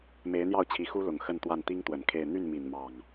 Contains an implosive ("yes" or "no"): no